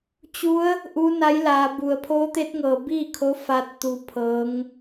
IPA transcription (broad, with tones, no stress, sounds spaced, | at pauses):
t͡ɕ u˧˥ ə̯ | ʔ u˧˥ n a˧˥ j l aː˩˧ b u˩ ə̯ pʰ oː˧˥ t̪ e˧˥ t̚ ŋ ɤː˩ b iː˥˨ kʰ o˧˥ f a˧ t̚ t̪ u˧ pʰ ɤː˧˥ ŋ